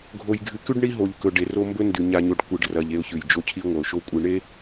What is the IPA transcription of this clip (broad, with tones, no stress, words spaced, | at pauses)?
ɡʱo˨jɡʱɨ˨kʉ˦ɖ ɳi˦ɦo˨ʎkɵ˨ɖ e˨ro˦mbɵ˦ndʉ˨ ɲa˨ɲo˨ɖ kʷɨ˨ɖrɐ˨ʎ e˦ʊ̯çʉ˨j d͡ʒo˦cʰi˦ ŋʷɐ˨ʊ̯ʃo˦ kʷʼɨ˨ɳe˦